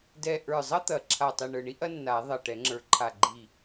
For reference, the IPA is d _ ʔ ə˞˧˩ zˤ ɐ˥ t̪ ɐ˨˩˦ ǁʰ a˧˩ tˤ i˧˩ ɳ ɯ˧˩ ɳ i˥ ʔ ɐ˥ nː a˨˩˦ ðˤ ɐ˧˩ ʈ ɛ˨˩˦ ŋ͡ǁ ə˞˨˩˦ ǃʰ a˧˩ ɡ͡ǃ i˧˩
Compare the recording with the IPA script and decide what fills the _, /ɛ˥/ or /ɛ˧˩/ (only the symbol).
ɛ˧˩